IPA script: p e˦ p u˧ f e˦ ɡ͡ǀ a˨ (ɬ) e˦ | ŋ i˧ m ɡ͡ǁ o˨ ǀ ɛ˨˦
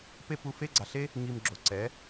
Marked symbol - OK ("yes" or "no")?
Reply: yes